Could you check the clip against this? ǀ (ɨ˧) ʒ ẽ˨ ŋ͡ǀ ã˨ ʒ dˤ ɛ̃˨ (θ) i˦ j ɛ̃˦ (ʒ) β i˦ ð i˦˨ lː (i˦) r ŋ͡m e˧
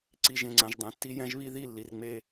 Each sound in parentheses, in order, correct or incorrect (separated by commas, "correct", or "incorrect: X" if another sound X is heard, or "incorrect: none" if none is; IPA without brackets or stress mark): incorrect: i˧, incorrect: tː, correct, incorrect: i˨